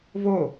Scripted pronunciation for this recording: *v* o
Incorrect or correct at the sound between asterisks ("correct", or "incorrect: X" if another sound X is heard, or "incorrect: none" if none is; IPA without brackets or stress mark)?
correct